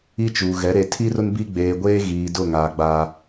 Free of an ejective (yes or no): yes